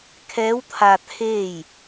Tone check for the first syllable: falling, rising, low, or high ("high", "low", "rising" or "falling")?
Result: rising